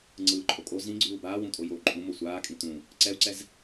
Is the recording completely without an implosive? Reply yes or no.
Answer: yes